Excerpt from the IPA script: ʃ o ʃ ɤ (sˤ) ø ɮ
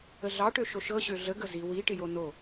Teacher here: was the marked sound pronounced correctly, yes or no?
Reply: no